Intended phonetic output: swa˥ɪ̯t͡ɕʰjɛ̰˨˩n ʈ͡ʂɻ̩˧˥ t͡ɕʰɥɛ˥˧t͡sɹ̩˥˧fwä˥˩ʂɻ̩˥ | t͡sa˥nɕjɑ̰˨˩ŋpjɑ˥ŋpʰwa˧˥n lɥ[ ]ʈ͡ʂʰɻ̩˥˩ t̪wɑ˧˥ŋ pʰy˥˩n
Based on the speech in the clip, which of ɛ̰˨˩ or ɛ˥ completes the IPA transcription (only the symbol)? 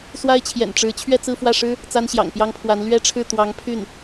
ɛ˥